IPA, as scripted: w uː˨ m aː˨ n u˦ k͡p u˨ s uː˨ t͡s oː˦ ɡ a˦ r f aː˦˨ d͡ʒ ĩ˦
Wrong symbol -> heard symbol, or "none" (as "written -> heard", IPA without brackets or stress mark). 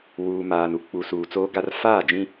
none